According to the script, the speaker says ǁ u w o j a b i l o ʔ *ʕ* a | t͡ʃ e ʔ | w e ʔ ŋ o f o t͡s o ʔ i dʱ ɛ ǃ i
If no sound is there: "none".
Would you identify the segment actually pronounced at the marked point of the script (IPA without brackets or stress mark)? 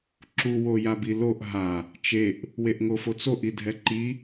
ɦ